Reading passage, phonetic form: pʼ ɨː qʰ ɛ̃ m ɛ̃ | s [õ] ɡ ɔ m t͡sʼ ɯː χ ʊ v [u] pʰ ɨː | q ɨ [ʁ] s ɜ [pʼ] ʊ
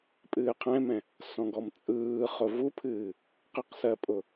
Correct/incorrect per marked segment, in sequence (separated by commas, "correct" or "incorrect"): incorrect, correct, incorrect, correct